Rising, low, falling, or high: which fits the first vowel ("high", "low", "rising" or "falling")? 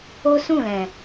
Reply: high